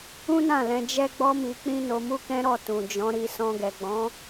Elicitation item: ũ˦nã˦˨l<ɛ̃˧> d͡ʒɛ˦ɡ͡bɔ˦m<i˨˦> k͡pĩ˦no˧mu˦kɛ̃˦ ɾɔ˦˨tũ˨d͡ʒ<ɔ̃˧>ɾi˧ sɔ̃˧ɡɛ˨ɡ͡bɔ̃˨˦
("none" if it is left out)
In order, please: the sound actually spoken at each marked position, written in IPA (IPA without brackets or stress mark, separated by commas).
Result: ɛ̃˧, i˧, ɔ̃˨˦